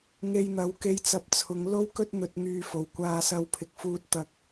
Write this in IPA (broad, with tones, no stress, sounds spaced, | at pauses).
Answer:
ŋ e˧ j n̪ ɐ˨˥ w k e˧ j t͡s ɐ˧ p̚ t͡sʰ ʊ˨˧ ŋ l o˥ w k ɵ˥ t̚ n̪ ɵ˧ t̚ ŋ yː˧ f o˨˩ w kʷ aː˧ s ɐ˧ w pʰ ɪ˨ k̚ f uː˧ t̚ t̪ ɐ˨ k̚